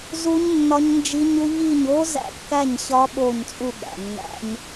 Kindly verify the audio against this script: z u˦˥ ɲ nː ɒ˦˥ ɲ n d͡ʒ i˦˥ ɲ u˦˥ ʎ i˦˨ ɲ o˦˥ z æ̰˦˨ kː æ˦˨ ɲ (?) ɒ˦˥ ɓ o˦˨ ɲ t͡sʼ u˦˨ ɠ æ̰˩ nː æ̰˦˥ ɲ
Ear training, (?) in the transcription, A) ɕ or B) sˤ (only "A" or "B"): A